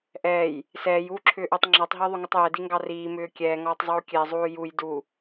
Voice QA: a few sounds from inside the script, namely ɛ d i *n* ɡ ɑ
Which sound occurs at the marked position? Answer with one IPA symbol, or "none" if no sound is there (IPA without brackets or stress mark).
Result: ŋ